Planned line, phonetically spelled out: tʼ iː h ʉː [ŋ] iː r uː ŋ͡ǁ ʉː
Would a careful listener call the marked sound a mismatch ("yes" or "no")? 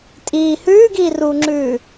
yes